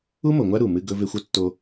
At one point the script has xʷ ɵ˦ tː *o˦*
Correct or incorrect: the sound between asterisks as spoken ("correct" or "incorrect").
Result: correct